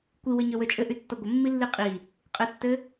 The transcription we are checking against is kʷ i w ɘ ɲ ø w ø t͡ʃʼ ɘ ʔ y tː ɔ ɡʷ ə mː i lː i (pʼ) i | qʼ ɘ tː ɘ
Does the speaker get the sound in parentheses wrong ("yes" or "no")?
yes